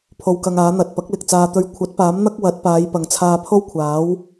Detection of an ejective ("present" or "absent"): absent